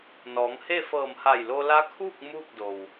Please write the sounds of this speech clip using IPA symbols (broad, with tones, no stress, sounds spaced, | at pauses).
n ɔː˩˧ ŋ h e˥˨ f ɤː˧˩ m h a˧˩ j l o˧ l a˧˥ kʰ uː˥˨ k̚ m uː˥˨ k̚ d o˩ w